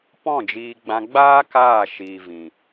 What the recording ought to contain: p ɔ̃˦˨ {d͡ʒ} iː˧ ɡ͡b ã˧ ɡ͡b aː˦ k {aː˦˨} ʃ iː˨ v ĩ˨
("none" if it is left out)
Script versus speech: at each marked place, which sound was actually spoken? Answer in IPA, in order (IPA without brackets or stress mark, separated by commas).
d͡ʒ, aː˦˨